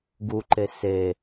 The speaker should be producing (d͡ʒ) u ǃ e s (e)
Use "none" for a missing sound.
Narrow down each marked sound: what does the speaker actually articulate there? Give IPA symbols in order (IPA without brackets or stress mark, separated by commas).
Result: ɡ, e